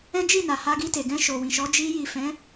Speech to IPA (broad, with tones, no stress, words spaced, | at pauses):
ɛ̃˦d͡ʒi˦˨na˨ ha˧ɡi˧te˨ɡɛ̃˧ ʃo˨wĩ˨ʃɔ˨˦ d͡ʒi˧ji˨ fɛ̃˨˦